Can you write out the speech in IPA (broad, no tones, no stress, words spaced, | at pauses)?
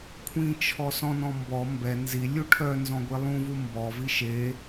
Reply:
kʷʰĩ t͡ʃʰɔsɔ̃nɔ̃ mbɔ mbɛ nzilʲu ʈʰœ nzɔ̃ɡʷilˠũvu mbɔvi ʃe